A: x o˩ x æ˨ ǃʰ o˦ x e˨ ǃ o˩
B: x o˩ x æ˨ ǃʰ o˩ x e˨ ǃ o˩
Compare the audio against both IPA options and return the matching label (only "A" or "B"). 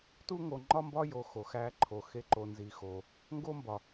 B